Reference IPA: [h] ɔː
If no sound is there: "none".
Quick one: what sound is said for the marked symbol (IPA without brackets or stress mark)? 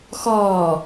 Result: x